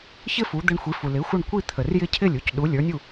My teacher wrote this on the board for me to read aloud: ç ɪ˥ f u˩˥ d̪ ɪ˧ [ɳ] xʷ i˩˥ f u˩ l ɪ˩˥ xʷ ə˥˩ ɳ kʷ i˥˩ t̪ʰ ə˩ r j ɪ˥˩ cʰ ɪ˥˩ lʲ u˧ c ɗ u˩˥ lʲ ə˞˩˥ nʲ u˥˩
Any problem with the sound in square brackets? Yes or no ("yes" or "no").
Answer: no